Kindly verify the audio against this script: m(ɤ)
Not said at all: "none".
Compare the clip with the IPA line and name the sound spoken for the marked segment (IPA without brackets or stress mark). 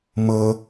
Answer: ɤ